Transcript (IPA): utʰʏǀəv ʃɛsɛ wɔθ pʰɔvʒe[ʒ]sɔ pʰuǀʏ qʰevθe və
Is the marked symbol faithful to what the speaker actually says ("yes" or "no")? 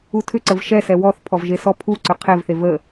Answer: no